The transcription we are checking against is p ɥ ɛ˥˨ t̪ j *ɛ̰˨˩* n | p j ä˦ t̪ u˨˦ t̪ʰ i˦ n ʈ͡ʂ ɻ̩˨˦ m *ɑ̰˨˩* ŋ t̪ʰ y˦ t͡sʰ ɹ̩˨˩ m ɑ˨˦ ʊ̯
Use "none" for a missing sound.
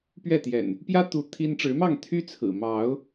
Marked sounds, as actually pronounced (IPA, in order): ɛ̰˨˩, ɑ˥˨

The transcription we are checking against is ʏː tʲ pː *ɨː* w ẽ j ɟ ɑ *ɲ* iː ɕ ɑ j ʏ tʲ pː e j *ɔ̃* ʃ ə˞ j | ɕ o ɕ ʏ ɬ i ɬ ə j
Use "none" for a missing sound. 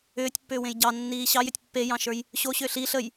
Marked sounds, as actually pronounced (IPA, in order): ʏː, nː, ɑ̃

